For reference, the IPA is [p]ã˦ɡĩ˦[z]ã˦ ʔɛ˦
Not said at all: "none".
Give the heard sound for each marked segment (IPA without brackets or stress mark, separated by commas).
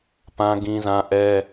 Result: p, z